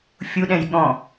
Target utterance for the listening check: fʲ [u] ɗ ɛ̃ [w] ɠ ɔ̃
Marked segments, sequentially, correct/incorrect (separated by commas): correct, incorrect